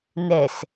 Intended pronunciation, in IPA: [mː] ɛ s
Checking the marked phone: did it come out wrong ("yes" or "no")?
yes